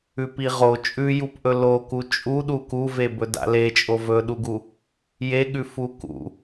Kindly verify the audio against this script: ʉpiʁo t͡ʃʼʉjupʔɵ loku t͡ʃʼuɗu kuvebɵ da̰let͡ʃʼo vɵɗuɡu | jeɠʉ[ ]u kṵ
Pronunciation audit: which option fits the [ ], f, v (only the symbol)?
f